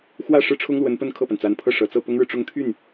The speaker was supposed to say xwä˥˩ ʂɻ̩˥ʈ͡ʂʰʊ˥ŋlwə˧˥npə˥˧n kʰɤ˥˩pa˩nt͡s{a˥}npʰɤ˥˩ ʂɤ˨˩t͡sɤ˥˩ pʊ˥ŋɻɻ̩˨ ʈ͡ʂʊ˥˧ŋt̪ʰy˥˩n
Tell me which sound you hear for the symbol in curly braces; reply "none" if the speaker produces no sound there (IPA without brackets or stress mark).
a˧˥